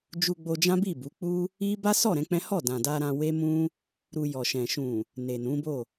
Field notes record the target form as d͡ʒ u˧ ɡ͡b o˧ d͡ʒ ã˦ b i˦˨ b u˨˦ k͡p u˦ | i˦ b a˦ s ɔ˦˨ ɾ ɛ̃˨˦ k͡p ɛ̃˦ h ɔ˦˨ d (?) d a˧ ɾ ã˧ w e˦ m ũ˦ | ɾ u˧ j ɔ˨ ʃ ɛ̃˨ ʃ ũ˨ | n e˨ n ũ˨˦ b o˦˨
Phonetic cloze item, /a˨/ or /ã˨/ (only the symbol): ã˨